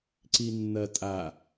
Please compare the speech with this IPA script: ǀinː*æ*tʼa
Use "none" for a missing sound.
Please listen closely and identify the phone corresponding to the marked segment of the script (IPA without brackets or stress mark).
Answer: ɐ